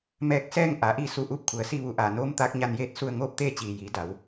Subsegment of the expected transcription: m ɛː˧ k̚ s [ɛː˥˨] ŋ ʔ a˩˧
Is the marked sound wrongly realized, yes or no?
no